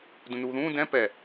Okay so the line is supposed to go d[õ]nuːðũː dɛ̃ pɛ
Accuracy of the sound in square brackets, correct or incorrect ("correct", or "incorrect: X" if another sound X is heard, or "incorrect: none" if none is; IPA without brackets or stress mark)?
incorrect: ũ